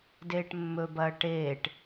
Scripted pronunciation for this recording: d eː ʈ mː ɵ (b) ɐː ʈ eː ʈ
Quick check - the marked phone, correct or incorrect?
correct